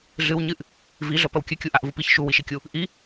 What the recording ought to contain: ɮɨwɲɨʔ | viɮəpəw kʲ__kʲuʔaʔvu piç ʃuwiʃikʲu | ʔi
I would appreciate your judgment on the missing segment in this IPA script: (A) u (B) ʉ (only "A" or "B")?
B